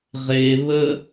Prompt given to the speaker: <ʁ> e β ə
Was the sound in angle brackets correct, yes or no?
yes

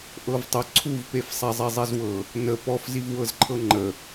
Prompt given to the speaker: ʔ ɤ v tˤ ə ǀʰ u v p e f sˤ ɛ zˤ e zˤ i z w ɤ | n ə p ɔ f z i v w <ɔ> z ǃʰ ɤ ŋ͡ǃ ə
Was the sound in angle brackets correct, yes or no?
no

